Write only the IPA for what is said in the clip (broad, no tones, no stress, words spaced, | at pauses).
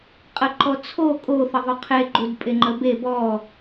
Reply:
qʼəǃɔ t͡sʰo kʼoθəðˤo qʰeɡ͡ǃudpʼeŋ͡ǃə be bɔ